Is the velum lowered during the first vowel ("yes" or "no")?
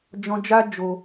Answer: yes